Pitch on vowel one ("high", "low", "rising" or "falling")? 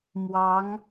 rising